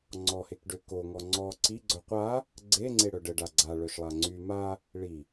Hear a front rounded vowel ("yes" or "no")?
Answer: yes